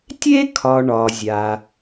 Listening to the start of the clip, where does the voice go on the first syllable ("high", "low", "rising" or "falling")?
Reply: high